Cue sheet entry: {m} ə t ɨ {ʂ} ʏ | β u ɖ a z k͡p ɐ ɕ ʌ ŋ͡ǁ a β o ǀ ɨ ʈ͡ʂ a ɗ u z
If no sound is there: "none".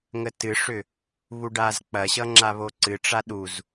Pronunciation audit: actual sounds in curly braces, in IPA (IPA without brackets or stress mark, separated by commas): ŋ, ʂ